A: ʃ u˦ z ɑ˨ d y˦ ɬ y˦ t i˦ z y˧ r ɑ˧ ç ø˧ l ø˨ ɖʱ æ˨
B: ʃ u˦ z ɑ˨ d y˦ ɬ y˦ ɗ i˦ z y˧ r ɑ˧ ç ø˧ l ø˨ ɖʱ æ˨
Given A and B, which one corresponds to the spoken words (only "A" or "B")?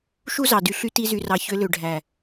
A